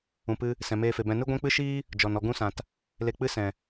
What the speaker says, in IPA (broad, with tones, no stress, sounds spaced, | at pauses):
ũ˨ p ɨ˧ | s ɛ̃˨ m eː˧ f e˨ b ɛ̃˧ n ɨ˦ ɡʷ ɛ̃˦ k͡p ɨ˦ ʃ iː˦ | d͡ʒ ɔ˨ n ɔ˧ ɡ ũ˦ s ã˨ t | l e˧ k͡p ɨ˦ s ɛ̃˨